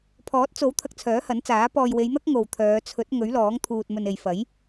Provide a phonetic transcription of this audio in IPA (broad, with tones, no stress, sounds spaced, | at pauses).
pʰ ɔː˨˥ t̚ t͡s o˨˥ w t̪ʰ ɐ˧ k̚ t͡sʰ œː˨˥ h ɐ˨˥ n t͡s aː˨˥ p ɔː˨ j w e˨˧ j n̪ ɐ˥ k̚ ŋ o˨ w t̪ʰ œː˨˧ t͡sʰ ɵ˨˥ t̚ ŋ ɵ˨˥ ɥ l ɔː˨˥ ŋ t̪ʰ uː˨ t̚ m ɵ˨ n e˨ j f ɐ˨˥ j